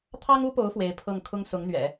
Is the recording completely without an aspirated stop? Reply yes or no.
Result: no